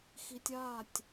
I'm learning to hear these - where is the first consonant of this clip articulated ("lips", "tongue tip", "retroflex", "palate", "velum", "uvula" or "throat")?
velum